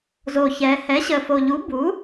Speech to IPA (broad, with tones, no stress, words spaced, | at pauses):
zo˨˩çɛː˩˧ hɛ˩˥ɕəː˨˩fo˨˩ ʎu˩˥buː˩˥